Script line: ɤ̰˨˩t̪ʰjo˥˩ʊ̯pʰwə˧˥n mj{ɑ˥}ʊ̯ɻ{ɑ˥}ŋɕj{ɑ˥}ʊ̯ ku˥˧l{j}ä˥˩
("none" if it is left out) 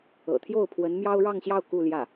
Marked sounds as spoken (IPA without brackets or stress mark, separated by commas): ɑ˥, ɑ˥˧, ɑ˥˧, j